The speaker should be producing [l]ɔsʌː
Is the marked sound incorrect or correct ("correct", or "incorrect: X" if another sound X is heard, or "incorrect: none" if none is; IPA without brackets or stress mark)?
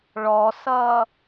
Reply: incorrect: ɭ